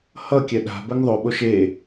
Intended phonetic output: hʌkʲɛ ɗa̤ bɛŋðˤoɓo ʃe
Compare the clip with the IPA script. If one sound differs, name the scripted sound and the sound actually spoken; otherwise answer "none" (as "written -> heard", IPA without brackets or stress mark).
none